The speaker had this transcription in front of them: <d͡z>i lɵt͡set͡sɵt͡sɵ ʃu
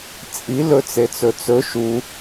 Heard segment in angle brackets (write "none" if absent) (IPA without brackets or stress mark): t͡sʼ